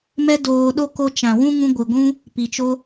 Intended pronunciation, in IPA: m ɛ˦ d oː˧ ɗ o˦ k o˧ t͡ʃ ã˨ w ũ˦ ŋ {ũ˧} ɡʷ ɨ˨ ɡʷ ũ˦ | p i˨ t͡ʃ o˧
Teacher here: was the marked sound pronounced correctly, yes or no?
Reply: yes